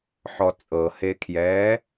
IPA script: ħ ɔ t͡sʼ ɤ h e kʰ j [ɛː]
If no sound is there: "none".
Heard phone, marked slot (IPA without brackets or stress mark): ɛː